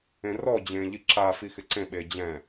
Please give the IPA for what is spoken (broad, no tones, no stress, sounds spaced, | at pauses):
ẽ r ɔ d͡ʑ ẽː ʎ i ǁ a f i x ɪ ǀ ẽ ɓ e d͡ʑ ɛ̃